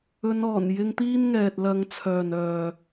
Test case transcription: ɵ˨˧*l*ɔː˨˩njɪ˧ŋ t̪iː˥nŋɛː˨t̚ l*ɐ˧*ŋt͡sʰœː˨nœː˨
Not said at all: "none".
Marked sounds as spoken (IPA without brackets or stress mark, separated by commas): n, ɐ˧